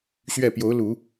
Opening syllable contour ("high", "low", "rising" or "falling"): falling